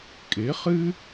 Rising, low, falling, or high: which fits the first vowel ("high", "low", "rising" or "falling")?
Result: rising